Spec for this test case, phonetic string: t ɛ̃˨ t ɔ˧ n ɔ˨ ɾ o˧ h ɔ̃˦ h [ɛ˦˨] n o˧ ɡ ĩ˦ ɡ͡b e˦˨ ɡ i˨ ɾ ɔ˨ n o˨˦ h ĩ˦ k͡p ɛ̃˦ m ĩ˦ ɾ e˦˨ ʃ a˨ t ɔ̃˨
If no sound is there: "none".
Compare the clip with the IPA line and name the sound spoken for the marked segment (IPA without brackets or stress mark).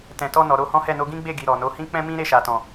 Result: ɛ˦˨